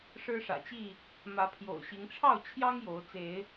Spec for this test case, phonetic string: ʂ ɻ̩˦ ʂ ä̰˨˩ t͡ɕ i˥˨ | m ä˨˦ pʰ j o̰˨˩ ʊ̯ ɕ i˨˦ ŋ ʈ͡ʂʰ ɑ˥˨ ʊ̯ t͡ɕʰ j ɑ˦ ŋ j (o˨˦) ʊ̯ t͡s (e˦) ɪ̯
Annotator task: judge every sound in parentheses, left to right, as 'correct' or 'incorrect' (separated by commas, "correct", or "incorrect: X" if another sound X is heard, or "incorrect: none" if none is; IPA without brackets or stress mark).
correct, incorrect: e˨˦